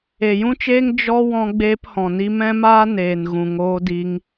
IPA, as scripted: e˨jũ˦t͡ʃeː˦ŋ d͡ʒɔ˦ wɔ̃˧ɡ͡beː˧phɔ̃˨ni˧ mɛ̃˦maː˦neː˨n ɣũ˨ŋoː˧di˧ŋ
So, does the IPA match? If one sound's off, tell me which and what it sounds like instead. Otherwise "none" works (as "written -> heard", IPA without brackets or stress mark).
none